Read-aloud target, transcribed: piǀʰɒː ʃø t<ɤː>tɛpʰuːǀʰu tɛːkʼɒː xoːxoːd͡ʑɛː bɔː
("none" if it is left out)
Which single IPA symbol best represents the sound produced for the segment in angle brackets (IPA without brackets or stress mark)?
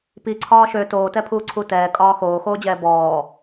oː